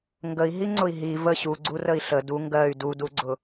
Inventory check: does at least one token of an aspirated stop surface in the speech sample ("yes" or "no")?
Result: no